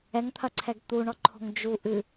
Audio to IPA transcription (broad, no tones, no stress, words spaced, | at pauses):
ɛŋt̪ʰɐǀʰɛɡ t̪uɳɔǃʰo̤ŋ d͡ʒuʔɨ